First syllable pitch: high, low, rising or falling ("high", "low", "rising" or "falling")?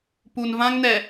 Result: low